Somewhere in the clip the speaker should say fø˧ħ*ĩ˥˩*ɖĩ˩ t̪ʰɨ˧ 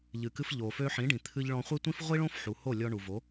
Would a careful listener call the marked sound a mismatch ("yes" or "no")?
yes